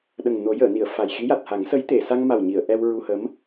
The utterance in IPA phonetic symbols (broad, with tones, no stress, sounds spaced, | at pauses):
ɗ ə˨˩ ŋ n o˨˩˦ j əː˨˩˨ n i˨˩˨ ə̯ f a˨˩ j x i˧˥ j a˨˩ t̚ h a˨˩˦ ŋ s ə˧˥ j t̪ e˨˩˨ s a˧ ŋ m a˨˩ w ɲ i˨˩˨ ə̯ ʔ ɛ˧ w ɹ u˧ h ə˧˥ m